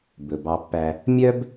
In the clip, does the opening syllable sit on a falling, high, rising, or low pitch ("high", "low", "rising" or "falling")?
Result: low